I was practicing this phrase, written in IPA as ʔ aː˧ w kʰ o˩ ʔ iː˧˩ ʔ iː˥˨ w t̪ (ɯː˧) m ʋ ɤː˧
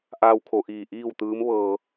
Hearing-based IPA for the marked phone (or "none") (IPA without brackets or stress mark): ɯː˧˥